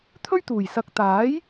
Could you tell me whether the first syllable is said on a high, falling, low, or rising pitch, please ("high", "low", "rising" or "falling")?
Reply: high